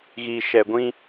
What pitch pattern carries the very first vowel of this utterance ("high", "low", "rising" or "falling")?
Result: low